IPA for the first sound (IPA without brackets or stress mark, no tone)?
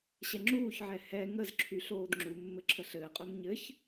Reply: ɕ